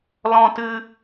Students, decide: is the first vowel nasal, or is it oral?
nasal